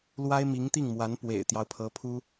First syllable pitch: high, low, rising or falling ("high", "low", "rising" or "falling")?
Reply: high